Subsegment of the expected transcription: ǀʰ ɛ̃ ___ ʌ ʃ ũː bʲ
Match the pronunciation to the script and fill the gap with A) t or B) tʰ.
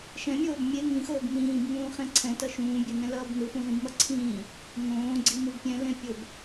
A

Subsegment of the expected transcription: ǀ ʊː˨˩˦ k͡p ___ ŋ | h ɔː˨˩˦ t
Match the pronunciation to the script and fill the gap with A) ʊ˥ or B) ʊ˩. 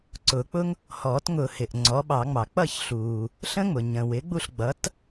A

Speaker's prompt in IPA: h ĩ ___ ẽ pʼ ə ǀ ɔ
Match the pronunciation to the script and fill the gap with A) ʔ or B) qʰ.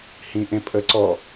A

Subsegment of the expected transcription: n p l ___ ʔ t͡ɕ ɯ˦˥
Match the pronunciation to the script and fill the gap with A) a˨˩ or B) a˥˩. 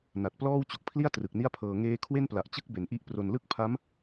A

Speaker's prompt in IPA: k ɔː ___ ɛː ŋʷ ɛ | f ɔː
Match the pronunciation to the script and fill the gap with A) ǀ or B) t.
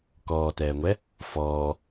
B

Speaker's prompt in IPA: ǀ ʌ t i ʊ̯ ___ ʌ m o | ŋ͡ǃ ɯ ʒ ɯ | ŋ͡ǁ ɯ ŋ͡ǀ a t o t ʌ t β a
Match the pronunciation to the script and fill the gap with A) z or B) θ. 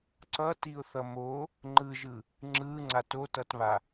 B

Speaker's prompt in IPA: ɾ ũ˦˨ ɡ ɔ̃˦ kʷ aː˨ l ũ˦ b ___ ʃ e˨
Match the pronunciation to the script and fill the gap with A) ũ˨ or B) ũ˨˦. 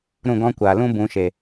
B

